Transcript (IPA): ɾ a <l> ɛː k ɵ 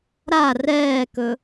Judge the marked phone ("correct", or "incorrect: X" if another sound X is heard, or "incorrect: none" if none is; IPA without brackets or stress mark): incorrect: r